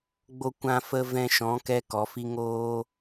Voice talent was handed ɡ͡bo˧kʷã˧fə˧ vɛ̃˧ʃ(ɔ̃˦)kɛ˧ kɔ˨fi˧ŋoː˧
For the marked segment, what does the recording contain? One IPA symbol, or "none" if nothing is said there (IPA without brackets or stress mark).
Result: ɔ̃˨˦